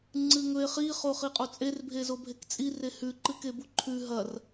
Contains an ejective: yes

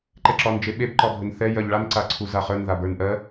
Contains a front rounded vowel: no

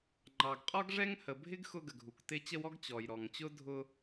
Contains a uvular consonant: yes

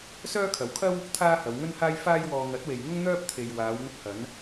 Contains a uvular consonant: no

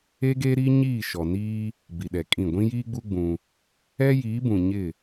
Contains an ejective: yes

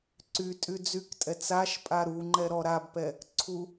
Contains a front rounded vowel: yes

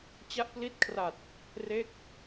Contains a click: no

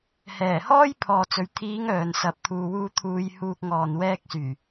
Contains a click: no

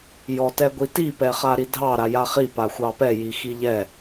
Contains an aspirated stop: no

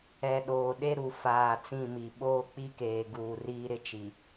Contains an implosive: yes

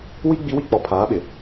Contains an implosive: yes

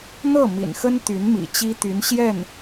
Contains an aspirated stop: no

